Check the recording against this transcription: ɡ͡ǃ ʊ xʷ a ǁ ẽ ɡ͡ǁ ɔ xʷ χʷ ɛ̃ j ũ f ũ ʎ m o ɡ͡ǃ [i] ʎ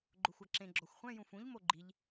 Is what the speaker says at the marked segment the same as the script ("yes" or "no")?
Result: yes